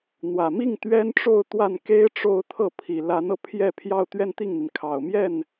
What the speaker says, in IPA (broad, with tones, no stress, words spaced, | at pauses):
n̪wä˨˩mi˥˩ŋ t̪ɥɛ˥nʈ͡ʂo˥˧ʊ̯t̪wa˥˩nke˥ɪ̯ ʈ͡ʂo˥˧ʊ̯t̪ʰɤ˥˩ pʰi˨˩la˧˥nɤ˧ pʰjɛ˥˧ pʰjɑ˥˧ʊ̯t̪ɥɛ˥˧nt̪i˥˩ŋn̪i˩n kʰɑ˨˩ʊ̯mjɛ˥˩n